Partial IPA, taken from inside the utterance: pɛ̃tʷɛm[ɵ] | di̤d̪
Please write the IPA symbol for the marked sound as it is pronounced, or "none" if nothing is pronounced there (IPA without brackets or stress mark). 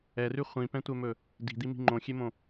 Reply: ɵ